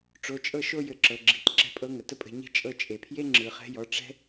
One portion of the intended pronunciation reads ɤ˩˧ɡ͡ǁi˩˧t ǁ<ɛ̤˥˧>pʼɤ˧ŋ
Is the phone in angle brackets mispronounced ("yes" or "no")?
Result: yes